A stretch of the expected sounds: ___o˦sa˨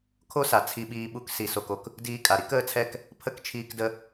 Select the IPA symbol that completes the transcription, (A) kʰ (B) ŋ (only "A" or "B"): A